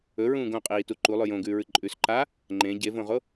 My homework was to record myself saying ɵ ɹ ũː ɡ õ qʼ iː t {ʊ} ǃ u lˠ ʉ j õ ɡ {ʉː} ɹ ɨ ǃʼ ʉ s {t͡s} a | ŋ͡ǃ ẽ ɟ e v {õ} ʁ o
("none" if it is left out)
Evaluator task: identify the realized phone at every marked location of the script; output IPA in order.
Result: u, ʉː, ǃ, õ

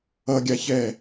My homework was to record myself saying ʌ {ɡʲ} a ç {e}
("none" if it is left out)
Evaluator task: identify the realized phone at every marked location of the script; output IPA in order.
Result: ɡʲ, ɛ

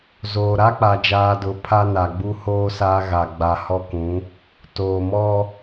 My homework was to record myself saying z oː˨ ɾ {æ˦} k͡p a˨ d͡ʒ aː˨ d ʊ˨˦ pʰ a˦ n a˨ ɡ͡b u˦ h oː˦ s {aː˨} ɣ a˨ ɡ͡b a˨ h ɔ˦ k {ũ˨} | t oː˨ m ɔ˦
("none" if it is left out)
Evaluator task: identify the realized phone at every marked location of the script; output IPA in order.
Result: a˦, aː˦, ũ˨˦

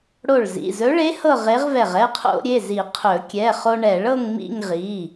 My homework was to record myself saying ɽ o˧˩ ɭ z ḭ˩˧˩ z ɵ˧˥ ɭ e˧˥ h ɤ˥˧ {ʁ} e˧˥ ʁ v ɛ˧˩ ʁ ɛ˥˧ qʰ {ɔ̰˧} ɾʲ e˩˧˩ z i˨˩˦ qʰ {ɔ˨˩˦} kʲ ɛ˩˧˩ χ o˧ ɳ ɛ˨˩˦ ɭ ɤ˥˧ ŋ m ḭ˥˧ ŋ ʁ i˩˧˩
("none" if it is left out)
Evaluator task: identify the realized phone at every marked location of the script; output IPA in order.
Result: ʁ, o̰˧, ɵ˨˩˦

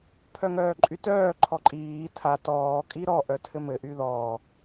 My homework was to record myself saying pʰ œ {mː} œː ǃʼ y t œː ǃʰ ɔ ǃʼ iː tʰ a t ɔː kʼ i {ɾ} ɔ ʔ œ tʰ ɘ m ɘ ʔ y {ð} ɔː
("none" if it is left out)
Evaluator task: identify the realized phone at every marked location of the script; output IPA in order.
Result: ŋ, ɾ, ð

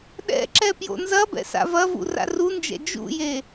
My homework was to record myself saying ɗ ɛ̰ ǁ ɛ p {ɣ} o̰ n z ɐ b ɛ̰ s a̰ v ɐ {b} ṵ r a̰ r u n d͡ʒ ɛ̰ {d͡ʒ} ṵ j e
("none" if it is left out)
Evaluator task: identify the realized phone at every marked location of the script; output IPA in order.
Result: j, v, d͡ʒ

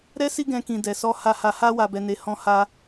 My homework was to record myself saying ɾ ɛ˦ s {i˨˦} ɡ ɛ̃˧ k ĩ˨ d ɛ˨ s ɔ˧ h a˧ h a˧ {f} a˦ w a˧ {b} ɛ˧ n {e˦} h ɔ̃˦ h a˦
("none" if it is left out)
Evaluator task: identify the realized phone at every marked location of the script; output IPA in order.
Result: i˦, h, b, e˧

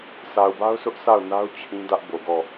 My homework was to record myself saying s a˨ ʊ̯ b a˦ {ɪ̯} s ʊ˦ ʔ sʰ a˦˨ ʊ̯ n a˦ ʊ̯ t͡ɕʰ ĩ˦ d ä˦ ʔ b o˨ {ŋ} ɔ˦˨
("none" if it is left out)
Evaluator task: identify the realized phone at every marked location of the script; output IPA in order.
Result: ʊ̯, ɡ

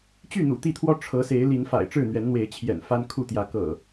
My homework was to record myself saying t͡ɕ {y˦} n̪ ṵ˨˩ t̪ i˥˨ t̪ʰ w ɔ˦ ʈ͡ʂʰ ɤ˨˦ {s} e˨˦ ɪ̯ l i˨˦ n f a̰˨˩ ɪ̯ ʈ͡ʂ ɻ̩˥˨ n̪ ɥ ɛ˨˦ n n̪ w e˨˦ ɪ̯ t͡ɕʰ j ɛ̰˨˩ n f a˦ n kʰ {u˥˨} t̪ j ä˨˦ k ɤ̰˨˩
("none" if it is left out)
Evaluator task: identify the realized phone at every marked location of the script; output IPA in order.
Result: y˥˨, s, u˥˨

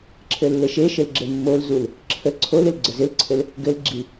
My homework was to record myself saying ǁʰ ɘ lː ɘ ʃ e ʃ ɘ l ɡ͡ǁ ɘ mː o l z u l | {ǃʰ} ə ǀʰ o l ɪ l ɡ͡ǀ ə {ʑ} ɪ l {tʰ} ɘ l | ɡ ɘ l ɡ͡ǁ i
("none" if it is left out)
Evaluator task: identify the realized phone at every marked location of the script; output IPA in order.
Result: ǁʰ, z, ǀʰ

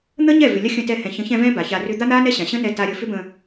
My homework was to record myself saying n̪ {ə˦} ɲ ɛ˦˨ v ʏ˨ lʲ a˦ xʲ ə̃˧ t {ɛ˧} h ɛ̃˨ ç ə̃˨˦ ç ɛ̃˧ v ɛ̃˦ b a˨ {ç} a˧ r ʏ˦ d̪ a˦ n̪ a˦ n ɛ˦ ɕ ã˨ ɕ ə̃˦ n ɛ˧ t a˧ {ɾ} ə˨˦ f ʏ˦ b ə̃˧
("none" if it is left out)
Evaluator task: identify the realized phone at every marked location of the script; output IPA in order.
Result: ə˦, ɛ˧, ç, ɾʲ

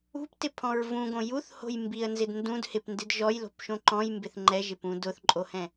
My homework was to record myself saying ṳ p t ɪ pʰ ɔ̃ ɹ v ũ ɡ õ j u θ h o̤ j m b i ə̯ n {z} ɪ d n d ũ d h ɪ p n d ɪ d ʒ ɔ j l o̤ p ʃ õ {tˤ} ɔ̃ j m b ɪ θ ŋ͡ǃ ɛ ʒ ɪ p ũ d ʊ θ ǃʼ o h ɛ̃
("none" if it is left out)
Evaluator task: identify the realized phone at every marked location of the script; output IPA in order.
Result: z, ǃ

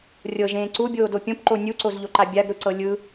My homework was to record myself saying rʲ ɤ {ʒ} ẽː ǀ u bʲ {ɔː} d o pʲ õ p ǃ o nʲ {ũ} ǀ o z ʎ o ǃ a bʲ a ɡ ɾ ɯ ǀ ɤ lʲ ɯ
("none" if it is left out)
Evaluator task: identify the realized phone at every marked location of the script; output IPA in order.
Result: ʒ, oː, u

